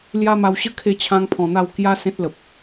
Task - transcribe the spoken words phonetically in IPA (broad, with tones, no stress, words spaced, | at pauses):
lja˦ma˧w ɕə˦ kʰe˥˧t͡ɕʰã˦ŋpʰɔ̃˧n̪a˥˧w kja˦ sẽ˦t̚lə˨p̚